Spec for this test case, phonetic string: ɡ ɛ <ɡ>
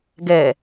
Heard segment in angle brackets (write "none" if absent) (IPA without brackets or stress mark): none